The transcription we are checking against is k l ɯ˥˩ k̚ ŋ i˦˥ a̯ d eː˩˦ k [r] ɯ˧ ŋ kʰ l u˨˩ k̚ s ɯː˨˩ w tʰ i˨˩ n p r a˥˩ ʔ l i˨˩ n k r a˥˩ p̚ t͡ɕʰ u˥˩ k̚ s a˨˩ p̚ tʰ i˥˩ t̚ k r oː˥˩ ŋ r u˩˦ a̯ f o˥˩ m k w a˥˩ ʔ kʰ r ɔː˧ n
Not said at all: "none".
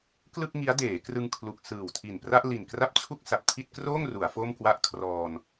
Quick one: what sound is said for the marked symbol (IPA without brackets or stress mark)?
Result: r